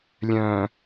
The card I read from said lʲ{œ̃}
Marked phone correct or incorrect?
correct